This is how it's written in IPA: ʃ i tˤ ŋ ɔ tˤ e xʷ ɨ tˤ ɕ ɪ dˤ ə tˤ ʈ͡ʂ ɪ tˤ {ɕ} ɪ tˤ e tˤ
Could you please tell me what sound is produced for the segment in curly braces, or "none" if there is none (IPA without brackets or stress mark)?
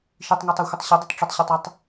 ɕ